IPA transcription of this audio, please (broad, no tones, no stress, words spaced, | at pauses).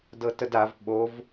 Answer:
dɤtədav ɓov